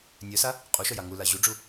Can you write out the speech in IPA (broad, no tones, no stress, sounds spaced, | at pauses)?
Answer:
nʲ œ s a | qʼ u ʃ œ j a ŋ u l a ʑ u ɖ͡ʐ u